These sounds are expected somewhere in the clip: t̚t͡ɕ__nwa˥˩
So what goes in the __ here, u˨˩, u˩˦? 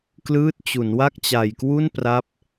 u˩˦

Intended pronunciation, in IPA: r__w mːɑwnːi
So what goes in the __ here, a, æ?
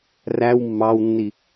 æ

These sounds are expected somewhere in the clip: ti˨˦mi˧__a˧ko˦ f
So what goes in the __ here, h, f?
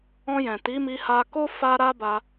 h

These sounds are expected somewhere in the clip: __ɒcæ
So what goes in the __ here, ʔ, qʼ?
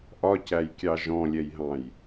ʔ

